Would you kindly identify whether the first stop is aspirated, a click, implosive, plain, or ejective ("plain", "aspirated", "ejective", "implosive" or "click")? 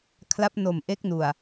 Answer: aspirated